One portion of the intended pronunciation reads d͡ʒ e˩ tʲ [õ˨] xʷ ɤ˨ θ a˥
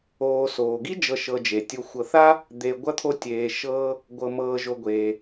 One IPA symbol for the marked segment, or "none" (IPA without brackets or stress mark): o˨